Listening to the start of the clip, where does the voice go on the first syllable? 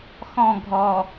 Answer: falling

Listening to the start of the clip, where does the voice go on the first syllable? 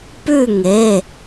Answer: falling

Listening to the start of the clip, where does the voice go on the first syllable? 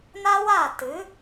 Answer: high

